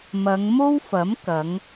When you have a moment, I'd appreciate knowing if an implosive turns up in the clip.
no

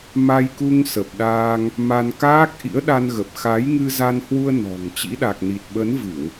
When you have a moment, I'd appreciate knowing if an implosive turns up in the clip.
yes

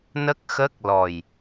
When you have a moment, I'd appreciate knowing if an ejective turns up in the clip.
no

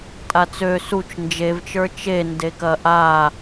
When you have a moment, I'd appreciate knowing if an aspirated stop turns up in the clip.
no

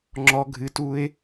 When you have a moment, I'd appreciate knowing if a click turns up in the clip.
yes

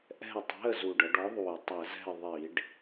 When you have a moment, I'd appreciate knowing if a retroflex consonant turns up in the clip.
yes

